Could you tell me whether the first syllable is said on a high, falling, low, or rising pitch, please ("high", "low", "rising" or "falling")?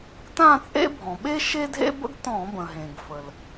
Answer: falling